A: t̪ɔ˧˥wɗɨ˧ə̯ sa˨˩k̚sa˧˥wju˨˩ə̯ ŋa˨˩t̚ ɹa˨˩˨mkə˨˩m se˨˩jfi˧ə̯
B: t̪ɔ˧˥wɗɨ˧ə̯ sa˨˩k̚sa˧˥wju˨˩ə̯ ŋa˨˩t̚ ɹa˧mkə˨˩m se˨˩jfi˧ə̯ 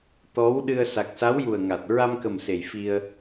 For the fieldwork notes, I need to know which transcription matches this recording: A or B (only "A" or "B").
B